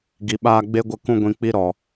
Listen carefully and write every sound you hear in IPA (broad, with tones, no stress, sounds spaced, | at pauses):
ɡ i˨ ɓ aː˧ ɡ͡b e˦ ɡʷ ə˧ k ũ˧ ɡʷ ĩ˨ k͡p i˦ ɾ ɔ˨